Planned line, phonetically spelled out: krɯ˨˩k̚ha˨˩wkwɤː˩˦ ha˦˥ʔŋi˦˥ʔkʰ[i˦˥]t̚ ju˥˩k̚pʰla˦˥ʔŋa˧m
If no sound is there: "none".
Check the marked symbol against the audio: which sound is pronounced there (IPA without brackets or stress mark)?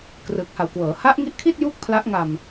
i˥˩